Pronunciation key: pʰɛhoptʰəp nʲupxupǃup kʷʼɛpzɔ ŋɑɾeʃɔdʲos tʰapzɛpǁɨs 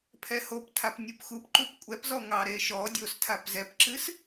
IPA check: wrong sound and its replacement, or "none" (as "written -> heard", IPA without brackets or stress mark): ə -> a